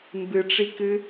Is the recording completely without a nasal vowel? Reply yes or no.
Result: yes